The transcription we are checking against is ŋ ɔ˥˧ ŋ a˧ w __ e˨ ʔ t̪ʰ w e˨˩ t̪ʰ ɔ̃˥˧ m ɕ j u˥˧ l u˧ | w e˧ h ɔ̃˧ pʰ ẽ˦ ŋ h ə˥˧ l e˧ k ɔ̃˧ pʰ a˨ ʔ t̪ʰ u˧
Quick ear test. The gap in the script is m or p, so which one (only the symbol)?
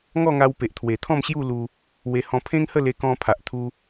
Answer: p